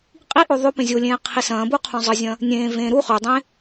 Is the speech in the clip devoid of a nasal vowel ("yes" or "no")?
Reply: no